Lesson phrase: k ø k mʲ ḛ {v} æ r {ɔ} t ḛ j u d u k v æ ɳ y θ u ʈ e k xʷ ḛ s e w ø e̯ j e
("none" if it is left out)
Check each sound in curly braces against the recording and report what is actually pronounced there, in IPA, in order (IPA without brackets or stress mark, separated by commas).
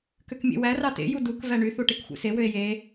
w, ɑ